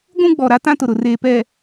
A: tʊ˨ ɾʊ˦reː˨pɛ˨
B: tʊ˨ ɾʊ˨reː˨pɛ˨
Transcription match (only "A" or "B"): B